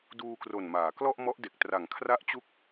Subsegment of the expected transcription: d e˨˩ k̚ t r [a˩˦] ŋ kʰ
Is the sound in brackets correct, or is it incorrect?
incorrect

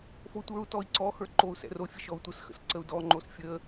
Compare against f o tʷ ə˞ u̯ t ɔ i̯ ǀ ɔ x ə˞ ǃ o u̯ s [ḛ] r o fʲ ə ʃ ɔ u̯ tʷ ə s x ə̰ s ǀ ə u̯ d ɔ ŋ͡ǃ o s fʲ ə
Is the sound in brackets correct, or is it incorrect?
incorrect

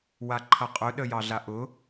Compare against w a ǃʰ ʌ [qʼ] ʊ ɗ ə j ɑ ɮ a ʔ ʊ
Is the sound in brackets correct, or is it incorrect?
correct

